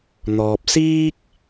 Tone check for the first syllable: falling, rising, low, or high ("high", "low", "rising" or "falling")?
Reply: low